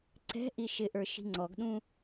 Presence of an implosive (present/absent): present